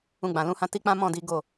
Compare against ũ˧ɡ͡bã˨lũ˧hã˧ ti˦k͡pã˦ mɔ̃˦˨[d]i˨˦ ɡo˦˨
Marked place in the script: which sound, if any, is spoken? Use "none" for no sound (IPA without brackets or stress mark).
d